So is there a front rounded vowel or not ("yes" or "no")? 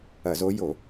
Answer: no